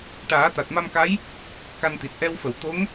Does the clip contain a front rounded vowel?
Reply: no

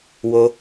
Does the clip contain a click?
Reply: no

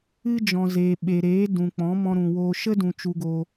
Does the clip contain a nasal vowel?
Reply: yes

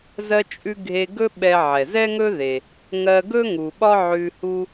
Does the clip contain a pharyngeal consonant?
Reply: yes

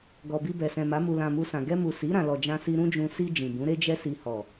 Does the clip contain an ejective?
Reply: no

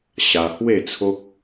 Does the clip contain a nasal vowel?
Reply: no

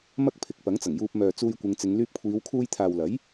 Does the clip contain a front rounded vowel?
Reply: yes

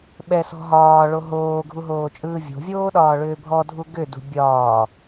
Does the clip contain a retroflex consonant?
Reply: yes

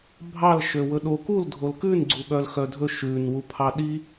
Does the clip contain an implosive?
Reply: yes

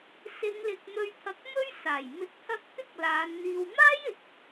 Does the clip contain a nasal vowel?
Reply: no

